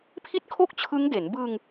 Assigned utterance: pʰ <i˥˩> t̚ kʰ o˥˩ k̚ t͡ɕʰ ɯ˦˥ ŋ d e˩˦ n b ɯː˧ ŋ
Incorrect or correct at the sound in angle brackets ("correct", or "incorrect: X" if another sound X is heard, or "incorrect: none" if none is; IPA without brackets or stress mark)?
correct